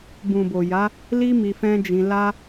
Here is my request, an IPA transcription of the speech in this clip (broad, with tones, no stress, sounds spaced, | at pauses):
b ũ˨ b o˨ j a˨˦ | l i˦ m i˧ f ɛ̃˦ d͡ʒ ĩ˧ l a˧